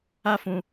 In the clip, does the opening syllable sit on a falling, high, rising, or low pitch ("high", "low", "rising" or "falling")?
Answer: high